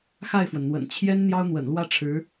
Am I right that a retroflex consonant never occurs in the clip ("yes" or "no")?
no